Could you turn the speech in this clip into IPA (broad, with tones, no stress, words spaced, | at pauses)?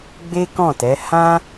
ɡ͡be˦kɔ̃˦˨tɛ˨˦ hã˦